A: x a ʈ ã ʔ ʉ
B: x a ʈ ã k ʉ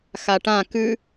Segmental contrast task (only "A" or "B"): B